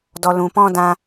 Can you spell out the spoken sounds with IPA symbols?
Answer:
d ɔ˧ l ũ˧ p ɔ̃˦ d ã˦

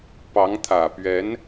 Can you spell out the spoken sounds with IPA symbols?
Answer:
p ɑ˧˥ ŋ t̪ʰ ä˨˩ p ɥ ɛ˧˥ n

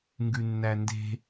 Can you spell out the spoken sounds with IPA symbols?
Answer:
ŋ ɡ ʉ nː æ n d e̤

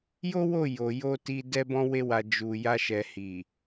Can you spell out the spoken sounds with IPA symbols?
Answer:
j o˦ w o˦˨ j o˨ j o˧ t i˧ d ɛ˧ b ɔ̃˧ w e˧ w a˨ d͡ʒ u˨ j a˧ ʃ ɛ˨ h i˨

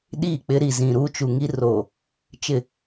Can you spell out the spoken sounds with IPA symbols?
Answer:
ɗ iː˦˨ k͡p ɪ˦ ɾ i˨ z ĩ˨ ɾ u˦ t͡ʃ u˨ ŋ i˦ r oː˨ | t͡ʃ ɪ˦˨

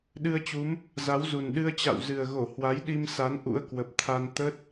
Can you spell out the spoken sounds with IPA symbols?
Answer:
ɗ ɨ˧ ə̯ t͡ɕ u˨˦ m | z a˨˦ w z u˨˩ n ɗ ɨ˧ ə̯ t͡ɕ a̰˧˨ w z ɨ˨˩ ə̯ ɣ o˧˩ h w a˨˦ j ɗ i˧ m s a˨˦ n ʔ ṵ˧˥ ə̯ k w ə˨˩ p̚ t̪ʰ a˧ n t̪ ə˦˥ t̚

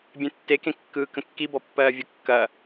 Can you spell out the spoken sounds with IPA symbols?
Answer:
bʲ ẽ tː e k ẽ kː ɯː k ə̃ kː i b ɔ pː ɜː vʲ ʊ kː ɐ

